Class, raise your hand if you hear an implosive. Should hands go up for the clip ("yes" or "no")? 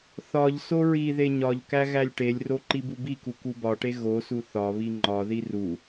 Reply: no